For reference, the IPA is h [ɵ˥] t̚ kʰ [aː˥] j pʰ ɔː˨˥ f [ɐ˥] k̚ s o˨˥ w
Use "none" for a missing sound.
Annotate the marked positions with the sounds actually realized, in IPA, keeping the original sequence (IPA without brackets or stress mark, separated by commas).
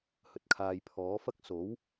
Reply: ɵ˨, aː˧, ɐ˥